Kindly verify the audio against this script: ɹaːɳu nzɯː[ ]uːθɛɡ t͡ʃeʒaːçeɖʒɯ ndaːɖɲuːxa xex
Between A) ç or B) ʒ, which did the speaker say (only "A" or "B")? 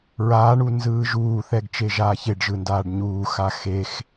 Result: B